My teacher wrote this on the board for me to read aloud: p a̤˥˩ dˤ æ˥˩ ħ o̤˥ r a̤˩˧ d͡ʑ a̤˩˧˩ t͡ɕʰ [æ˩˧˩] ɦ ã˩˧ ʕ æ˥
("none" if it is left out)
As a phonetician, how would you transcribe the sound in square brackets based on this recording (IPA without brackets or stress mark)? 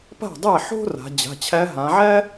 æ˧˥